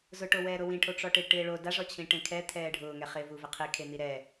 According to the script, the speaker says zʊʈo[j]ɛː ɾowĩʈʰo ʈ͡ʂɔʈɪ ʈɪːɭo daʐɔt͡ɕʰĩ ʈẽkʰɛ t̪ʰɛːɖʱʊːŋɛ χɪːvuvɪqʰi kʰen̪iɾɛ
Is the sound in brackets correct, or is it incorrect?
incorrect: w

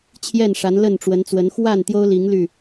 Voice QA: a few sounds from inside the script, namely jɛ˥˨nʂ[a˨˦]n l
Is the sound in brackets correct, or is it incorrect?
correct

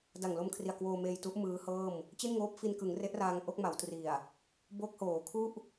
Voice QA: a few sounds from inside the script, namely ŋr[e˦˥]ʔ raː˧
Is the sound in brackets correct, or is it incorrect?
correct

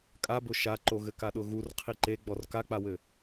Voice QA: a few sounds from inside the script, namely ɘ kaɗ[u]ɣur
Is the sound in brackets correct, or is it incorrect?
incorrect: ʊ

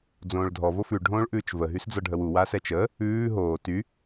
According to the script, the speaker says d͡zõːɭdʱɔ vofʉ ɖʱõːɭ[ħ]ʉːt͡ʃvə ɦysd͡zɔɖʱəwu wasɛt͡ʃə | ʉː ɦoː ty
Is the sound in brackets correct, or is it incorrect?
incorrect: ʔ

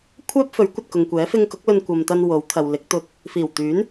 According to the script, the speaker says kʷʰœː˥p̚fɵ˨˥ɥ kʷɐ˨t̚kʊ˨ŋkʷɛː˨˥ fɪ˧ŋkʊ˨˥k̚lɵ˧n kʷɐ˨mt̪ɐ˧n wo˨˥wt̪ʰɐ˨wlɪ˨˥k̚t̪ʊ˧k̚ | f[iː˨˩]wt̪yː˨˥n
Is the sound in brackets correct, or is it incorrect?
correct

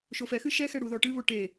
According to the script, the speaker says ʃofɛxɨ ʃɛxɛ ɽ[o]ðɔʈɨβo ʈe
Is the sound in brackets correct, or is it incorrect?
incorrect: u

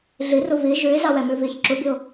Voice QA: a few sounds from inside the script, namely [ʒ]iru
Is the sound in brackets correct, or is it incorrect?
incorrect: ɮ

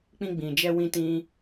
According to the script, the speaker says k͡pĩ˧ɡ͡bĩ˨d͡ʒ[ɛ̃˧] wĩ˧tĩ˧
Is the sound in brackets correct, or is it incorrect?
incorrect: ɛ˧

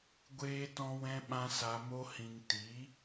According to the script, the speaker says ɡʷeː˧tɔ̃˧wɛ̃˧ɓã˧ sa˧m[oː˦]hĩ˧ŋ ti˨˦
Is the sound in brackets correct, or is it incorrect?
incorrect: o˦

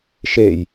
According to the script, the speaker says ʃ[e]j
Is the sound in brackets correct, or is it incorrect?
correct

